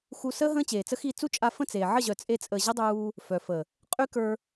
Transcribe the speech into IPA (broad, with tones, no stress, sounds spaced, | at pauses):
x u˧ s əː˦ ɦ ə̃ː˦ t͡ɕ eː˨ t͡s ə˦ x i˦˨ t͡s u˦ t͡ʃʼ a˧ f ə̃˦˨ t͡s eː˨ ʕ ə˦˨ ʑ œ˨ t͡sʼ e˧ t͡sʼ əː˨ ʑ ə˦ dˤ uː˧ | f œ˨ f ə˨ | qʼ y˦ k ə˞˧